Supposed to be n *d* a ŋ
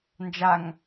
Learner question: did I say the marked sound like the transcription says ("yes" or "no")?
no